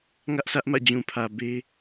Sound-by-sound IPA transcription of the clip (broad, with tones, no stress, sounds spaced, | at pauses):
ŋ ä˦ ʔ s ä˦ ʔ m ä̰˦˨ d͡ʑ ũ˨ pʰ ä˨ b e˦